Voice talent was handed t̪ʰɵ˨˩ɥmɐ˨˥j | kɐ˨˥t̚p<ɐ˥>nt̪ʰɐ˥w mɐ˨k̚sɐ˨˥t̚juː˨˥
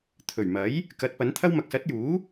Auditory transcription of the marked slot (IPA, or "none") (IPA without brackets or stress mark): ɐ˨˥